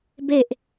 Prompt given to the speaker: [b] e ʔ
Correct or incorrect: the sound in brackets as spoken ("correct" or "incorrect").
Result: correct